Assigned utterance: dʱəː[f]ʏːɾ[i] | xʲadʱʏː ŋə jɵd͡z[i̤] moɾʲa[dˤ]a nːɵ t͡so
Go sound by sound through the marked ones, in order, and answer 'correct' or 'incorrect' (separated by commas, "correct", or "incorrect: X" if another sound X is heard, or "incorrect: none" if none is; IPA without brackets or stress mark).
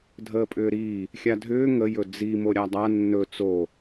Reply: incorrect: pʼ, incorrect: iː, incorrect: i, correct